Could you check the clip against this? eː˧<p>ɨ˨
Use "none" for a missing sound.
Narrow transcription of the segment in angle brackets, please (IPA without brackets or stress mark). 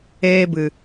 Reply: b